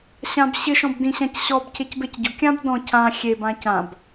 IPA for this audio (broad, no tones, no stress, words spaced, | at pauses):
ɕãbɕɪʃɔ̃b dĩɕãcɕɔbcʰec becɟʊkʲãb dɔ̃ cʰã xʲebã cãb